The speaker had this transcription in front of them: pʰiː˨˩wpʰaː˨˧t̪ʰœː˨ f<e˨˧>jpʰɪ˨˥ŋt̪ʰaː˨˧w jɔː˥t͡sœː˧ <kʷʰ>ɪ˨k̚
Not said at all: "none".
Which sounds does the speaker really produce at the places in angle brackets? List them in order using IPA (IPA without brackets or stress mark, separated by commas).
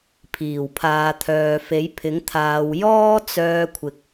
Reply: e˨˥, kʷʰ